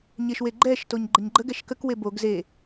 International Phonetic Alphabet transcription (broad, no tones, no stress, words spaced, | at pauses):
ɲeʃweɡ͡ǃɛʃtoɲ ɡ͡ǃəɲɡ͡ǃəɡɛʃ kəkwe boɡ ze